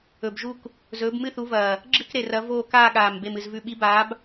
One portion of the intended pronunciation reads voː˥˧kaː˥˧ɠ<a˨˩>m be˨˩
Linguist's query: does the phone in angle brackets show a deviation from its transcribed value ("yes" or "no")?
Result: yes